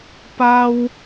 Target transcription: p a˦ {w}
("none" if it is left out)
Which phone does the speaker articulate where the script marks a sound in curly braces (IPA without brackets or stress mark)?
w